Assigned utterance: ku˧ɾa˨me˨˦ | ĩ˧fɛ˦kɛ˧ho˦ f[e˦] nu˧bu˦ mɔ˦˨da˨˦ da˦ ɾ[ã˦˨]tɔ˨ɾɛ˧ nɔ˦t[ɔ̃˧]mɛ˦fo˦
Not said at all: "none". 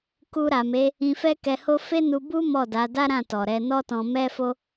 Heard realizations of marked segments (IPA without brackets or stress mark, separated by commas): e˦, ã˦˨, ɔ̃˧